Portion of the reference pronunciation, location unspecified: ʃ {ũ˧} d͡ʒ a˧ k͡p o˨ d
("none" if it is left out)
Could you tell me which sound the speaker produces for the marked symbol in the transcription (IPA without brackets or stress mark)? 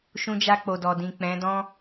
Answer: ũ˧